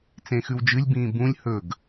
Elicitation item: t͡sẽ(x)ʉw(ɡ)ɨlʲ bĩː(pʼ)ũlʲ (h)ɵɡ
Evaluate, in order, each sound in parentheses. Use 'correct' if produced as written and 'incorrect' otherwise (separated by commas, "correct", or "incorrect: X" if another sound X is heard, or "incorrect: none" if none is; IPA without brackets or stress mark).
correct, incorrect: d͡ʒ, incorrect: b, correct